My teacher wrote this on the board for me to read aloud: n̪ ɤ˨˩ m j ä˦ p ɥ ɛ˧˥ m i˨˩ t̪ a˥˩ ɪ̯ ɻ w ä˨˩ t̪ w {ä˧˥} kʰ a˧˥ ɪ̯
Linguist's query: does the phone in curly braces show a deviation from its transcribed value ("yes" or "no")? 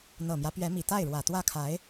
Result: yes